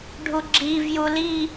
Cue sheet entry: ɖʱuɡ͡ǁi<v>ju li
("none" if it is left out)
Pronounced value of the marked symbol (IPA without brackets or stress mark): v